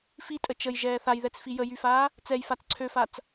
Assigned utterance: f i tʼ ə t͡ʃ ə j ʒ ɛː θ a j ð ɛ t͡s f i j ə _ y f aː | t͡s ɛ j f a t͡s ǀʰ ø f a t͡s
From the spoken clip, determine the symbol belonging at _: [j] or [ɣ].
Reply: j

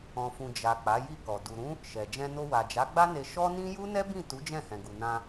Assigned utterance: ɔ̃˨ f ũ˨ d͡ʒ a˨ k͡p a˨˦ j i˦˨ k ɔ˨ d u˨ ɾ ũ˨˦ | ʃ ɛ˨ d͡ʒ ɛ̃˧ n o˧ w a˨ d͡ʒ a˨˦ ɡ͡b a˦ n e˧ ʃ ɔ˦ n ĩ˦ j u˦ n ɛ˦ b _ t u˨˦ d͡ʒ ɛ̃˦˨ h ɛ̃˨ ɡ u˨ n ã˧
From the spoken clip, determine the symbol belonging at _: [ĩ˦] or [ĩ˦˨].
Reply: ĩ˦˨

